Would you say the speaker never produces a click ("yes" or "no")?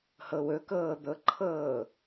no